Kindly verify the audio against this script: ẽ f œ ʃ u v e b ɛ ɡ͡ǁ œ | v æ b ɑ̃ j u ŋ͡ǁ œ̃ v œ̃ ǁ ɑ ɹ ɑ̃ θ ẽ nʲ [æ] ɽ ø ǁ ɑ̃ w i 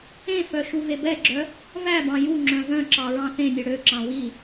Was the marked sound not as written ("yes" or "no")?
yes